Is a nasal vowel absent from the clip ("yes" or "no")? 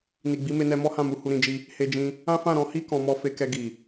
no